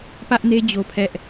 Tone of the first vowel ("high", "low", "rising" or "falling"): high